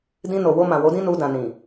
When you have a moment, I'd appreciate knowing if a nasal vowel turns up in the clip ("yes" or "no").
yes